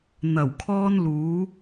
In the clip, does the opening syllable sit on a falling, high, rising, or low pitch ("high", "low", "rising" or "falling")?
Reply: low